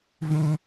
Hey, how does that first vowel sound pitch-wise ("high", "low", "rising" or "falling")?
high